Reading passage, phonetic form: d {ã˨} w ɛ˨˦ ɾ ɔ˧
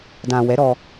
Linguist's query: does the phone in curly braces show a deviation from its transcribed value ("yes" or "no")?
no